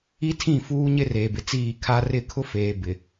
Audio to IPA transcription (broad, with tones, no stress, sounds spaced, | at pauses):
i˦ tʰ ĩ˦˨ f uː˦ ɲ ɪ˦ r eː˨ b ɪ˨ t͡s iː˦˨ kʰ a˦ r ɪ˦˨ kʰ ʊ˦ f eː˨ b ɪ˨